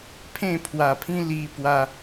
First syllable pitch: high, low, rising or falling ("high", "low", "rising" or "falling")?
falling